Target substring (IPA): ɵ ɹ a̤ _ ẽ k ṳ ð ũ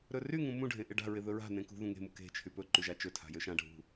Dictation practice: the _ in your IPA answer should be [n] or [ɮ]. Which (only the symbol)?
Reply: n